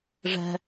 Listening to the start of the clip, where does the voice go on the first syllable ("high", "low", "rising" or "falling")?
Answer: low